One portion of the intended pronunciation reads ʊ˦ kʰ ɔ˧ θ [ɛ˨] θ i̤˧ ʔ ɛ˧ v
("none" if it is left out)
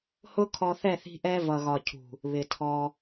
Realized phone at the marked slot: ɛ˦˨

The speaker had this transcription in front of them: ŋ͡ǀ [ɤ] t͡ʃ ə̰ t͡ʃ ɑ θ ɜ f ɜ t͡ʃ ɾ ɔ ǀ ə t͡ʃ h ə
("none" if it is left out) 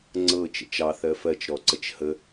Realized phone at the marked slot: ɤ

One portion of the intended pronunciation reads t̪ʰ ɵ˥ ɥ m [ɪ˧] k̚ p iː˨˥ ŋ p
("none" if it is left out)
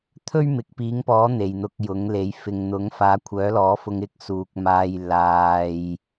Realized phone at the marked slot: ɪ˨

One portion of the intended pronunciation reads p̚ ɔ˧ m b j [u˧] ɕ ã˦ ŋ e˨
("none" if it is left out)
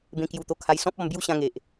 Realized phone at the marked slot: u˦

